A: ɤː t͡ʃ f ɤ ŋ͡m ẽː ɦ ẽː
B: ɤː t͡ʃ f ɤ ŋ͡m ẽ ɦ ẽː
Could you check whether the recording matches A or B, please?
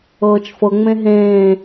B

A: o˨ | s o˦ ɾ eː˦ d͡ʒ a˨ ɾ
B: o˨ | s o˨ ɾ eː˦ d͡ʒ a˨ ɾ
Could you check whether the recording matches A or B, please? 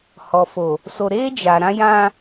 B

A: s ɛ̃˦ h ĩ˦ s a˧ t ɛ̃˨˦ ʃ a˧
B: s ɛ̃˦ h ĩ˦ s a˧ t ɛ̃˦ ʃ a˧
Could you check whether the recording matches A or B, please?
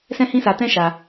B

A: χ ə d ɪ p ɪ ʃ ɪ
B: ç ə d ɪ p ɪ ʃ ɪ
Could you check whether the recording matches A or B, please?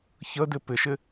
B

